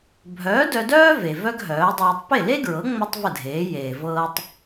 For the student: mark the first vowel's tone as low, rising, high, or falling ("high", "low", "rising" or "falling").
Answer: rising